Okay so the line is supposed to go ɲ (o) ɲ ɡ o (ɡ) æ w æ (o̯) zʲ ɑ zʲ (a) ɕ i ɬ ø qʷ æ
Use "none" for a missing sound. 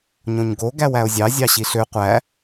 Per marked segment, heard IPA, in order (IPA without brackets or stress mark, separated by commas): õ, ɡ, o̯, ɑ